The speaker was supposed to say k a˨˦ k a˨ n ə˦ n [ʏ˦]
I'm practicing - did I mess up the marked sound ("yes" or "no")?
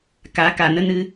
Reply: yes